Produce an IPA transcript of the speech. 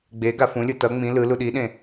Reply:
ɡ͡b e ɡ a f ũ lʲ ɯ t ʌ ŋ͡m ĩ l ɯ l u ɗ i ɗ ẽ

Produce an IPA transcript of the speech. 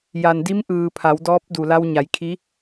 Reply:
j a˩ n d i˧˥ m ʔ ɯː˩ pʰ a˩˧ w d ɔː˧˥ p̚ d u˩ l a˧ w ɲ a˩˧ j kʰ i˧˥

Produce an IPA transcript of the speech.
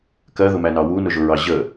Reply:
k ɜ ð ʊ m æ n ɑ w u n ʊ ʒ ʊ ɹ ɑ ʑ ə

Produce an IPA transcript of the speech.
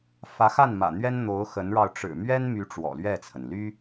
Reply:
f ä˧˥ x a˥˩ n m ä̰˨˩ n̪ ɥ ɛ˥ n n̪ o˧˥ ʊ̯ x ə˧˥ n ɻ ɑ˧ ʊ̯ ʈ͡ʂ ɻ̩˨˩ m ɥ ɛ˥ n m y˧˥ ʈ͡ʂ w ɔ̰˨˩ l ɥ ɛ˥˩ t͡sʰ ə˩ n l y˥

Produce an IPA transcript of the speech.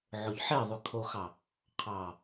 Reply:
ʕ o ʎ ħ e ðˤ y kʰ o x ɑ | qʰ ɑ

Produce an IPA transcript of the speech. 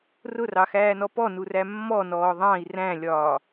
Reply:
r ʊ r ɑ x æː n ɔ p ɔ n u r æ mː ɔ n ɔː ðˤ ɑ̃ i̯ r æ̃ lʲ ɒː

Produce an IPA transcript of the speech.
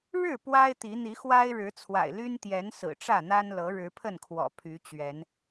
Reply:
ɻ ɻ̩˥˨ p w a˦ ɪ̯ t̪ i˨˦ n̪ i˨˦ x w a˦ ɪ̯ ɻ ɻ̩˨˦ t͡sʰ w a̰˨˩ ɪ̯ l y˦ n t̪ j ɛ˨˦ n s ɹ̩˨˩ ʈ͡ʂ ä˥˨ n̪ a˦ n l ɤ˨˦ ɻ ɻ̩˨˦ pʰ ə˥˨ n kʰ w ɔ̰˨˩ pʰ y˨˦ t͡ɕ ɥ ɛ˨˦ n

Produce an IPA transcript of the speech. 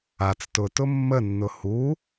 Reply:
a t͡s t ʊ t ʊ mː ə nː ʊ h u

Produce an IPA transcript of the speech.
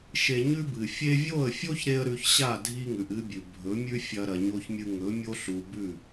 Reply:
ʃ e˧ ɲ ʉ˦ b ɨ˨ fʲ e˧ vʲ o˦˨ ə̯ fʲ o˦ ç ɾ e˦ ə̯ ɾ ʉ˧ ç ɕ a˦˨ dʱ i˦ ŋ ʉ˨ ʔ ɨ˦ bʲ ʉ˨ bʱ ɵ˨˦ mʲ ʉ˦ fʲ ɐ˧ ɾ ɐ˨ ɲ o˧ ç mʲ ɨ˧ ŋ ɵ˨˦ mʲ o˦ ɬ u˨ b ʉ˦˨

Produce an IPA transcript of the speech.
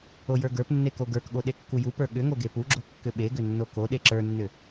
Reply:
o j ə˞ ɡ ə˞ p nː e k o ɡ ə˞ k ɠ o ɗ e kː u j u p ə˞ ɠ ʏ ŋ o ɡ e p u ɡ͡ǁ o kː ʏ ɓ e ɡ ʏ nː o k o ɗ e ǁ ə˞ nː ʏ

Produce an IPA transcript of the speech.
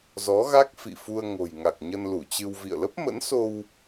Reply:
z ɔ˨˦ ɣ a˦˥ k̚ f ḭ˧˨ f u˧ ə̯ ŋ o̤˨˩ j ŋ a˨˩ k̚ ɲ ə˧ n l u˧˩ t͡ɕ ɨ˧ w v ḭ˧˨ ə̯ l ə˦˥ p̚ m ə̰˧˥ n s o˧ w

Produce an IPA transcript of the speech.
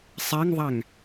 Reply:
sˤ ɛ ŋ ðˤ æ ŋ

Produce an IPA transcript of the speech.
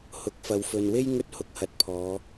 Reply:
h ʊ˨˥ k̚ f ɐ˨˧ w f ɵ˨ n w e˥ j ŋ ɵ˥ t̚ h ʊ˨˥ k̚ h ɐ˨˥ t̚ pʰ ɔː˨˧

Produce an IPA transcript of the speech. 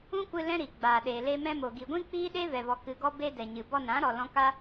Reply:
ũ˦ kʷ ɨ˧ l ɛ̃˦ ɾ i˨ ɡ͡b aː˨ ɗ eː˨ l e˧ m ɛ̃˧ m o˨ ɡ i˨ ɡʷ ĩ˦ k͡p iː˦ ɗ e˦ v ɛ˨ v ɔ˨ k ɨ˨ ɡ ɔ˧ b e˧ d ɛ˨ ɲ ɨ˨ b ɔ˧ n ã˨˦ ɾ ɔ˨ l ɔ̃˧ k a˦

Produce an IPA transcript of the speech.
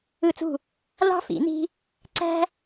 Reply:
ɯ˥˧ t͡s ṳ˥˧ | l ɑ̤˥ f ḭ˨˩˦ n i̤˥ | ǀ æ̤˥

